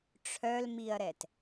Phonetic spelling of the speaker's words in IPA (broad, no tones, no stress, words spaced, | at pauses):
ʈ͡ʂʰœlmiɐ̯ɾɛt